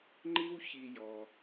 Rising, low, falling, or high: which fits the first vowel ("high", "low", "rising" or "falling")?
high